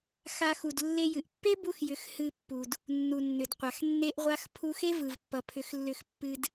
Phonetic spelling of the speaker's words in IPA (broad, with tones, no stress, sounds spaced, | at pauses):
x a˧ x u˨ d lː e˧ j ɨ˨ ʔ pː e˦ b u˧ x j ʏ˨˦ x h ɨ˧ pː u˨ d | nː u˨ nː ʏ˨ d qʷ a˨ x nː e˦ ʔ ʁʷ a˦ x pʰ u˧ x e˦ v ɯ˨ v pː ʌ˨ pʰ ʏ˨˦ x lː ʏ˧ x pː ɨ˧ d